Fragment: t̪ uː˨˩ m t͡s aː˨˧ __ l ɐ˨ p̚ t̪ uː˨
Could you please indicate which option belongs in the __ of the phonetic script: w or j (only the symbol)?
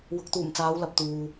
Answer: w